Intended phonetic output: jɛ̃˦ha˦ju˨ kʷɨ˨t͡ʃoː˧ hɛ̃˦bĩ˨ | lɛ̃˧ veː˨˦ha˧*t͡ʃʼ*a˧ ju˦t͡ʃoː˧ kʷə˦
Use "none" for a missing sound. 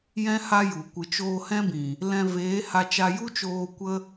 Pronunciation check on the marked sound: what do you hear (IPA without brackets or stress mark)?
t͡ʃ